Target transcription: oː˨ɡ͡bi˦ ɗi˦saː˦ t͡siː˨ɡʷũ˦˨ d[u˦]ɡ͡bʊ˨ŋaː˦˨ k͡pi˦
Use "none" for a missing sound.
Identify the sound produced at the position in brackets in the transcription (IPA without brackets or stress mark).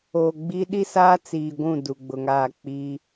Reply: u˨